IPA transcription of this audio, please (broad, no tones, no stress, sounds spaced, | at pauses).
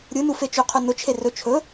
ɾʲ ɯ n u f e t͡ʃ ɵ qʰ ɵ n ʊ t͡ʃʰ e r ɵ t͡ʃʰ ɵ